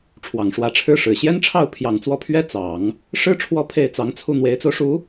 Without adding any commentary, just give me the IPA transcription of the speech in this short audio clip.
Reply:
ʈ͡ʂʰ w ɑ˨˩ ŋ ʂ w ä˧˥ ʈ͡ʂʰ ɻ̩˥ ʂ ɻ̩˨˩ ɕ j ɛ˥ n ʈ͡ʂʰ ɑ˥˩ ʊ̯ pʰ j ɑ˨˩ ŋ t͡s w ɔ˥˩ pʰ ɥ ɛ˥ t͡s ɑ˨˩˦ ŋ | ʂ ɻ̩˥ ʈ͡ʂʰ w ɔ˥ pʰ e˥˩ ɪ̯ t͡s ɑ˧˥ ŋ t͡sʰ u˥˩ n̪ w e˧˥ ɪ̯ t͡s o˧ ʊ̯ ʂ u˧˥

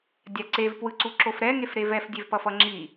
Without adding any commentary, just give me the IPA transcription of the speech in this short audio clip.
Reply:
dʲ a ǀ e v p w ɯ ǀ u ǁ o f ɾ ɛ ŋ e f ɾ e v ɛ f dʲ e v p ʌ f ʌ ŋ͡ǁ i

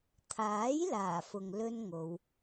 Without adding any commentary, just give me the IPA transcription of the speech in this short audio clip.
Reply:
t̪ʰ aː˨˥ j l aː˨˩ f ʊ˨ ŋ l ɵ˥ n ŋ o˨˧ w

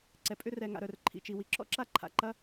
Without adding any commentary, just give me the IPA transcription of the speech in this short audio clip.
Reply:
ǀ ɛ˩ pʼ ʏ˥ r ɛ˩ ŋ a̰˩ ɾ œ˩ r ǃʰ ḭ˩ t͡ʃ i˩ w i˩ ǁ ɔ̰˥ ǁ a˥ ǃʰ a̰˩ ǃ ɐ˥

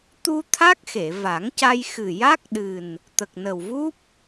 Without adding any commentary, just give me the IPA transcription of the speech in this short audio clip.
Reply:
t̪ u˧ t̪ʰ a˦˥ k̚ x e˨˩˨ v a˨˩˦ ŋ c a˧ j x ɨ˨˩ j a˦˥ k̚ ɗ ɨ˨˩ n | t̪ ə˨˩ k̚ n ə˨˩ w v u˦˥ p̚

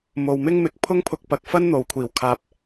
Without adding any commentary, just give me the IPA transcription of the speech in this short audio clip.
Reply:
m o˨ w m ɪ˥ ŋ m ɪ˨˥ k̚ pʰ ʊ˥ ŋ pʰ ʊ˧ k̚ p ɐ˨ k̚ f ɐ˥ n n̪ o˨ w kʷʰ iː˨˩ w kʰ aː˨ p̚

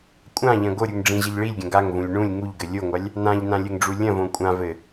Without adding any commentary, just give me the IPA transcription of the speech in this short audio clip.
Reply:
kʷʼ ã ʎ ɐ̃ ɡ o ɾʲ u ŋ ɖ͡ʐ ĩ ʑ ɘ ʎ ɭ i lʲ ɡʲ ɐ̃ ɡ a ŋ v ũ lʲ ɳ ũ lʲ ŋ u ʎ ɡ ɘ lʲ o ŋʷ a lʲ | n ã ʎ n ã lʲ ɘ ŋ ɖ͡ʐ u lʲ ɐ̃ v õ kʷʼ ã v ɘ

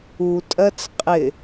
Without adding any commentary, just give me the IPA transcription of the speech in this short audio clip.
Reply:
u tʼ ɜ t͡s qʼ ɪ

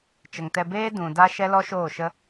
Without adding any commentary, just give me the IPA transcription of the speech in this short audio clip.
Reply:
t͡ʃ ə˨ ŋ t ɛ˧ b eː˦ d ũ˨ d a˧ ʃ ɛ˦ l ɔ˦ ʃ oː˦˨ ʃ ə˦

